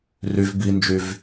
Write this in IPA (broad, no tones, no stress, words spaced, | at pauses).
ryv bind͡ʒyv